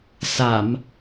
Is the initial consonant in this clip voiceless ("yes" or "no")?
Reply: yes